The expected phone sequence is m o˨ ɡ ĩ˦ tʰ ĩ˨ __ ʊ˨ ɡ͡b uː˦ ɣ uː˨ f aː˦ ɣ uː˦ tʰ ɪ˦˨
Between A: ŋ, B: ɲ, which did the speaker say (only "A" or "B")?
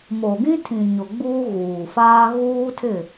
B